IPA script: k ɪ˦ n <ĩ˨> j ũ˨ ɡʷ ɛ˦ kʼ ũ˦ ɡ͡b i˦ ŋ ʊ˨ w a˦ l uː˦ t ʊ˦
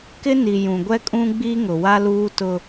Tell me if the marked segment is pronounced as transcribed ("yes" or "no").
no